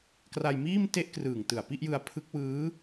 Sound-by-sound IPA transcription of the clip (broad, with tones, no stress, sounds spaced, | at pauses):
k r a˧ j m iː˥˩ m t e˥˩ ʔ k r ɯː˨˩ ŋ t ɯ˨˩ a̯ p i˥˩ ʔ j ɯ˧ a̯ pʰ ɯ˦˥ k̚ w ɯː˦˥